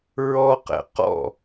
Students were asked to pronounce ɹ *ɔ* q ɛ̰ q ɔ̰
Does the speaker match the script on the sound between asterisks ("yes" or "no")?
yes